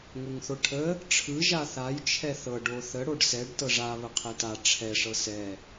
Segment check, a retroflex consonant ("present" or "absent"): present